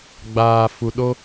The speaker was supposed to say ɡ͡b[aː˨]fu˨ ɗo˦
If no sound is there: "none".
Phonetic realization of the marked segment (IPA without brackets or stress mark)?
aː˨